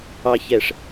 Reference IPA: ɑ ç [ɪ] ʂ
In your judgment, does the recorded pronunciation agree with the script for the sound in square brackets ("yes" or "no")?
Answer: no